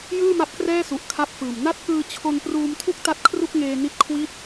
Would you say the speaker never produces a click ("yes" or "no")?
yes